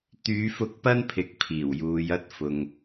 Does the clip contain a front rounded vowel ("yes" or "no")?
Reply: yes